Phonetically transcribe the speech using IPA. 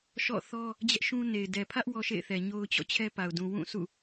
ʃ ɔ̰˦˨ θ ɔ˦ | d͡ʑ ɛ˦ ʔ ʃ ũ˦ n e˨ ɪ̯ d ɛ˨ pʰ ä˦ ʔ w ɔ˦ ʃ ḛ˦˨ ɪ̯ θ ɛ˨ ɲ o˦ ʊ̯ t͡ɕ ɔ̰˦˨ t͡ɕʰ ɛ˦ p a˨ ʊ̯ d ũ˨ w ũ˦˨ s ṵ˦˨

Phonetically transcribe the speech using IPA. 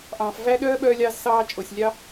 ʔ ɑ̃ː˨ f v æ˥ ɗ œː˥ ɓ œː˦ lʲ ɑ˦ z s ɑː˦ t͡ʃʼ o˩ sʲ lʲ ɑ˥

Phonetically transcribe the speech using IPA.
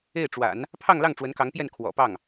e˥˩ ɪ̯ ʈ͡ʂ w a̰˨˩˦ n | pʰ ɑ˥˧ ŋ l ɑ˥˩ ŋ ʈ͡ʂ w ə˧˥ n k ɑ˧˥ ŋ p j ɛ˥˩ n kʰ w ɔ̰˨˩ p ɑ˥˩ ŋ

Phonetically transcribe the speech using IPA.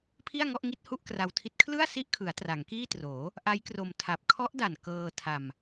pʰ i˥˩ a̯ ŋ ɔ˥˩ ʔ ŋ i˦˥ t̚ h u˥˩ ʔ k r a˧ w tʰ i˦˥ t̚ kʰ l ɯ˥˩ a̯ s i˦˥ ʔ kʰ ɯ˩˦ a̯ t r a˩˦ ŋ k iː˥˩ t r oː˩˦ | ʔ a˦˥ j k r o˧ m tʰ a˨˩ p̚ kʰ ɔ˦˥ ʔ d a˨˩ n k ɤː˧ tʰ a˧ m

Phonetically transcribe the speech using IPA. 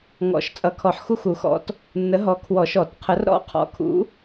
ŋ ɔ̰˨˩˦ ʃ t͡sʼ ʌ˨˩˦ kʰ ɔ˨˩˦ ħ x u˦˨ x u˨˩˦ x ɔ̰˨˥ t | nː ə˨˥ ɦ ɔ˨˥ kʰ w ɔ˨˩˦ ʃ ɔ˨˩˦ t qʰ ə˨˥ r ɾ ɔ̰˦˨ qʰ ɔ̰˨˥ kʰ ṵ˨˥

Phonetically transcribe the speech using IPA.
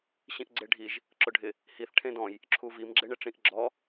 ɕ ĩ ʔ ɡ͡ǀ e ɖʱ i ʒ | ǁ ʊ ɖʱ ɪ | h i θ ʈʰ ẽ d ɔ̃ j | ǁʰ u v i m ɡ͡ǁ e ɳ ɪ ʈ͡ʂ ĩ ʔ ɡ͡ǁ ɔ

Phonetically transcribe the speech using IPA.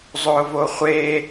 zˤ ʊː v o χʷ e

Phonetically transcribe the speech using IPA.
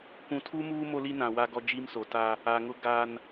kʷ ũ˨ tʰ u˦ m uː˦ m o˦ l i˦ n ã˨ w a˦ ɡ ɔ˦ d͡ʒ i˦ m s o˨ t a˦ | a˨ ŋ ʊ˦ ɡ a˦ n

